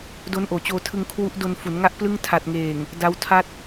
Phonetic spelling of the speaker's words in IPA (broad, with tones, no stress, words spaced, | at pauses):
do˦˥nʔoː˩˦t͡ɕoː˧tʰɯ˧ŋ kʰwu˦˥ʔdo˧nfu˩˦n ŋa˥˩ʔplɯ˥˩ŋ tʰa˨˩t̚ŋeː˨˩ŋ | da˦˥wtʰa˥˩t̚